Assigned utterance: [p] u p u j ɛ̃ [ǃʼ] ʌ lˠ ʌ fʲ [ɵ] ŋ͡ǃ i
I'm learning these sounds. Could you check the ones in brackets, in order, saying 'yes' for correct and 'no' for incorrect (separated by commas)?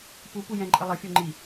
yes, yes, no